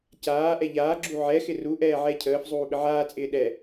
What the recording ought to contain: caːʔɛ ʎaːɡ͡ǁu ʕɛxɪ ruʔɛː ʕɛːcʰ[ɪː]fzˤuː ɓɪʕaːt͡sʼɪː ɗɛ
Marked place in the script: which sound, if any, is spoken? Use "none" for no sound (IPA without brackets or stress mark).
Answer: əː